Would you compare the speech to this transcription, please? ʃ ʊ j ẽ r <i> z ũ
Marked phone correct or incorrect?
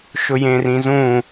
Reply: incorrect